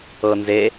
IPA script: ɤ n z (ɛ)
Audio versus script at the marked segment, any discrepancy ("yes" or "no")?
yes